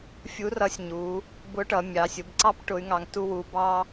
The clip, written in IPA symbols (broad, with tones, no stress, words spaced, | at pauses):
fʲu˧˥rʌ˧˥sʲɲu˩˧ | bʊ˧˥ʈʌ˩˧ mʲɑ˩˧sʲʊ˩˧bǀɑ˥p ʈʊ˧˥y̯ŋɑ˧ŋtu˥wu˧˥ bɑ˥